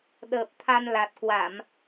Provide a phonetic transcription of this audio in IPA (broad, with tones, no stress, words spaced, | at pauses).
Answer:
ɗəː˨˩p̚t̪ʰa˧nla˨˩t̚ kwa˧˩˨m